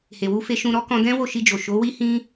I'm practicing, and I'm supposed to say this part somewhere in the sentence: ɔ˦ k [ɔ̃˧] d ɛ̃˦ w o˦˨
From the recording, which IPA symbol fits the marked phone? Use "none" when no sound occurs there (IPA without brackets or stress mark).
ɔ̃˧